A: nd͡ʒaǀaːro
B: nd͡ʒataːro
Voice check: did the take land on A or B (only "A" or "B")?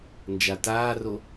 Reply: B